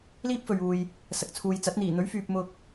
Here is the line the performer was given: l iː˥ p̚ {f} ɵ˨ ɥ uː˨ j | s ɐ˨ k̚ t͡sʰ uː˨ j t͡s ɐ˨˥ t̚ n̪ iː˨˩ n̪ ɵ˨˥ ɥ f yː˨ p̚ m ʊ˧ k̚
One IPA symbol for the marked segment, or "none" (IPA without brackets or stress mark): f